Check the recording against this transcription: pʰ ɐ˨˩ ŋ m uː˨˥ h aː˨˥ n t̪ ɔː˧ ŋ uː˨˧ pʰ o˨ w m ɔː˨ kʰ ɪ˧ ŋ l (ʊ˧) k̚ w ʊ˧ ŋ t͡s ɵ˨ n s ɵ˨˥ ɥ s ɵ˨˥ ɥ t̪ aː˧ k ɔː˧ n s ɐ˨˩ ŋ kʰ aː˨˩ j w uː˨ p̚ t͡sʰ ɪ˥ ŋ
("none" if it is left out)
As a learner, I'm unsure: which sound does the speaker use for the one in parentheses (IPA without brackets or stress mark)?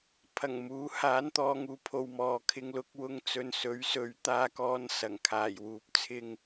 ʊ˧